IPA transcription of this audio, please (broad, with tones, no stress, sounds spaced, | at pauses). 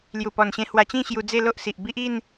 l j u˨˩ p ɔ˨˩ n ɕ ẽ˧ h w a˧ t͡ɕ ĩ˥˧ ɕ j u˧ d͡z e˥˧ l o˦ ʔ s i˨ ʔ b i˦ ʔ i˥˧ n